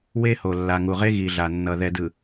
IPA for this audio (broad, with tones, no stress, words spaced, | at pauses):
we˦ ho˨lːa˨ŋu˨ʁe˦ ɣi˨ɮa˨nːʌ˨ ðɛ˨dɯ˨